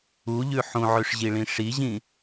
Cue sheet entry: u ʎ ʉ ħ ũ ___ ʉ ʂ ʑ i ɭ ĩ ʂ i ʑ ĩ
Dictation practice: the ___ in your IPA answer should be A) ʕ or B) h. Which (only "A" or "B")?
A